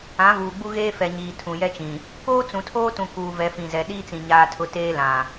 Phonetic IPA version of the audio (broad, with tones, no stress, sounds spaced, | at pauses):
ã˨˦ v uː˨ ɡ͡b u˦ ɣ eː˦ f ɛ˨ ɲ iː˨ tʰ ũ˨ j ɛ˦ t͡ʃ ĩ˨ | k oː˦ t͡s ũ˨ tʰ oː˦ t ũ˨ k uː˨ v ɛ˨ f ĩ˨ z ɛ˨ ɗ iː˦ t͡s ĩ˨ ɲ aː˦ tʰ ʊ˦ t eː˦ l ã˨